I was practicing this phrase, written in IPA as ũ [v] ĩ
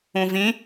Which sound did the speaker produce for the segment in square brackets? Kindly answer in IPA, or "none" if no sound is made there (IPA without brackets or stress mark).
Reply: v